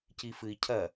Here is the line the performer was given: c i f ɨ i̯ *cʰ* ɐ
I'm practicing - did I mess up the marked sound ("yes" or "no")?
no